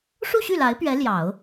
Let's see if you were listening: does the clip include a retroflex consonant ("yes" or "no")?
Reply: yes